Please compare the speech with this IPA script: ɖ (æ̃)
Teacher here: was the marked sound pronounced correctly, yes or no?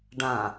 no